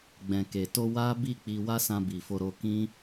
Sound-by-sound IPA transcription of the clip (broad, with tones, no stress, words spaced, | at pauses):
ɡ͡bɛ̃˨ke˨to˧ wa˦bi˦˨k͡pi˧ wa˦sã˧bi˨fo˧ ɾo˧kĩ˦